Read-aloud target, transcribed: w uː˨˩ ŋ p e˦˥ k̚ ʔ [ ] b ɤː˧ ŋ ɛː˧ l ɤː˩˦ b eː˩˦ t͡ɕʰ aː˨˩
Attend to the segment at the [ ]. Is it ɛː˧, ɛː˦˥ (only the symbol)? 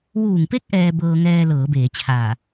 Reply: ɛː˧